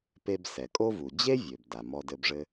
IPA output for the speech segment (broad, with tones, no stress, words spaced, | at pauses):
pe˧bsɛ˩kʼo˥vu˩ d͡ʑe˥vʲø˩b da˩mɔ˧dɘ˧bʐɘ˥